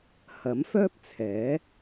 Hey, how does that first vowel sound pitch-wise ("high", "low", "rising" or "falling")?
rising